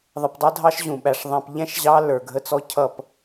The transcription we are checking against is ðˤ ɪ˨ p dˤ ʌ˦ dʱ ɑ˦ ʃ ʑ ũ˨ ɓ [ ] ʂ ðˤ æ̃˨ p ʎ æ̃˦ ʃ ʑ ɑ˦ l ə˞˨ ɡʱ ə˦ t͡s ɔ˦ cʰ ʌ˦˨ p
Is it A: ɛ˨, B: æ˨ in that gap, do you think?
B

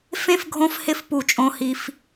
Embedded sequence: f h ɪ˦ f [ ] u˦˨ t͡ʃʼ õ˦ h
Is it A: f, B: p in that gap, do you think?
B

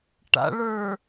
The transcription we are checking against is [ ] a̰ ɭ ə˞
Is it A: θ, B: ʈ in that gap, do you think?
B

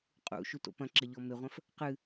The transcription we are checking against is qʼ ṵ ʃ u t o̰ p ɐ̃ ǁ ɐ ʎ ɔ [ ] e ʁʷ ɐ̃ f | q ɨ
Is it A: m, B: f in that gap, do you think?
A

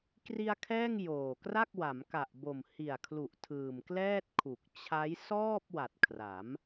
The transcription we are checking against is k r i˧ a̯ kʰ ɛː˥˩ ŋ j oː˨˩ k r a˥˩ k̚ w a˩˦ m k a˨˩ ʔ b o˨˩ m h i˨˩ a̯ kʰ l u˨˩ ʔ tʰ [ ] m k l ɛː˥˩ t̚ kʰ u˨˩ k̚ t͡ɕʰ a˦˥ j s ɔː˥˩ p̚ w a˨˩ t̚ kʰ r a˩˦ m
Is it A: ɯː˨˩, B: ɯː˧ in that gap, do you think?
A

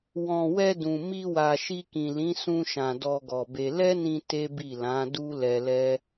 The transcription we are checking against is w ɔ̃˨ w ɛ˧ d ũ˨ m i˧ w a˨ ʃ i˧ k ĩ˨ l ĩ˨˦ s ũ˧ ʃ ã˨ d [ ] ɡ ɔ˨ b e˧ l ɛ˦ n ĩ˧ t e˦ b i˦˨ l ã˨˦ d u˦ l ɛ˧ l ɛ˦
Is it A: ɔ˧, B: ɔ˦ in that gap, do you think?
A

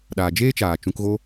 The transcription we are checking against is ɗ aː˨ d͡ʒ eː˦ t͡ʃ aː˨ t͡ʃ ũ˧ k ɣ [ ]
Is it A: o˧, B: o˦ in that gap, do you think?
B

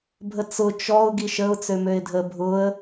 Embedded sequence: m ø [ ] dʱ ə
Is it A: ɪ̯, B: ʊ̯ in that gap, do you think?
A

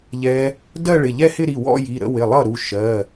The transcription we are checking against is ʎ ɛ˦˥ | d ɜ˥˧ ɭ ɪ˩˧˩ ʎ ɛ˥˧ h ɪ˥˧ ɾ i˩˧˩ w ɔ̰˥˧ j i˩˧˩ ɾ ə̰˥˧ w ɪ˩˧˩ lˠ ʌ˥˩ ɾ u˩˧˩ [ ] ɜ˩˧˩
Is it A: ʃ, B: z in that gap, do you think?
A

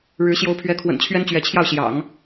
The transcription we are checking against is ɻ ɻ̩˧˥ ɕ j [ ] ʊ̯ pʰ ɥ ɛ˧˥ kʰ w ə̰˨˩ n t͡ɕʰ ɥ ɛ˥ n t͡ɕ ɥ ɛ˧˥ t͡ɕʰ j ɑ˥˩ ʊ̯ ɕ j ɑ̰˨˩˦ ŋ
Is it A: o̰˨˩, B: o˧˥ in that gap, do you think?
B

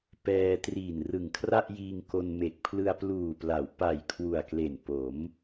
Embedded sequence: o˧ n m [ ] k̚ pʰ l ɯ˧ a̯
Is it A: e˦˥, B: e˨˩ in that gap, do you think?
B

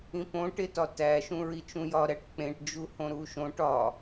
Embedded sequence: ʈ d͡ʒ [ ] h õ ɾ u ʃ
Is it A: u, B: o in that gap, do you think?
A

